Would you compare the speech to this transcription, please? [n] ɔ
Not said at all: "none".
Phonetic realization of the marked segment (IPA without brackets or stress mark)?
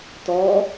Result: t